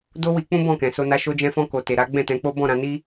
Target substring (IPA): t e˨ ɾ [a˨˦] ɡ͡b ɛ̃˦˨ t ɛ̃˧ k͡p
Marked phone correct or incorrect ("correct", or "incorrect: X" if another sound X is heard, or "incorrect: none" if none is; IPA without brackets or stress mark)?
correct